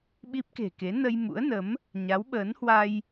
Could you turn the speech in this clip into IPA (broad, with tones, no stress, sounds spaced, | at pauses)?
ɓ i˦˥ p̚ k e̤˨˩ k e˨˦ n ə˧ j m ṵ˧˥ ə̯ n ə˨˦ m | ɲ a˨˦ w ɓ əː˨˦ n h w a˧ j